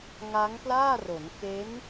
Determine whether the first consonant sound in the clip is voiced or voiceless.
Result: voiced